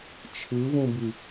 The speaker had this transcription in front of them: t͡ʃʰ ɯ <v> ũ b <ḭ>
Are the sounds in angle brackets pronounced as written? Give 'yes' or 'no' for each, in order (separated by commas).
yes, no